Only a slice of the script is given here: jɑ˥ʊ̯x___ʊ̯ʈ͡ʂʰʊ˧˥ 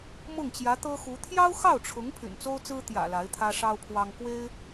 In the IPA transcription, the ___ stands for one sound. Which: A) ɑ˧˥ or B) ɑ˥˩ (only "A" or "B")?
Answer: B